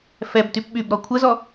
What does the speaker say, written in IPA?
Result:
fɛbtyp ɓyb ɾɔkʷʰəzɔ

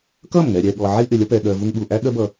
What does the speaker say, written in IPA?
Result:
kʌ˦˨mŋɛ˨ɾʲɛ˨ɠɔ˨ ʕi˦ʔɪ˨lʲʌ˦ pɛ˨ɠɜ˨vu˧ŋɠu˨ ʔæ˦ɠɜ˦bʌ˧

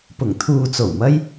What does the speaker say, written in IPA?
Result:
pʊ˨˩ŋt̪ʰuː˨t͡so˨˩wmɐ˧j

